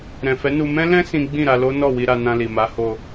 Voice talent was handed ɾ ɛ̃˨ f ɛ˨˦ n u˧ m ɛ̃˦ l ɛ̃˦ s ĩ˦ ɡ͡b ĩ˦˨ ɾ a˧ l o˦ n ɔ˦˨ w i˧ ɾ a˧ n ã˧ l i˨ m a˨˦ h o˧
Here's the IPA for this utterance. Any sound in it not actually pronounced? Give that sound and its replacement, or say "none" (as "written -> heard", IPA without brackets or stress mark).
none